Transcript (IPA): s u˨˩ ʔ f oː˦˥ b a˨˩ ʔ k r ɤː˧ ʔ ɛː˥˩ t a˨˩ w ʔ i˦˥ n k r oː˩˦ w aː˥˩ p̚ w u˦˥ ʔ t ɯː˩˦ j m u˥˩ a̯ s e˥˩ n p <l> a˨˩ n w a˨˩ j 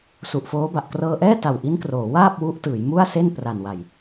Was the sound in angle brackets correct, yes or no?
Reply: no